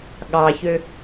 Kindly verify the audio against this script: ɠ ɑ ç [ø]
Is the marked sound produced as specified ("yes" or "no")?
yes